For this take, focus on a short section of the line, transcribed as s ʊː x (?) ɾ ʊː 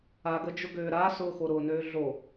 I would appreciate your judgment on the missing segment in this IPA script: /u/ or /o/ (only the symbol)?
o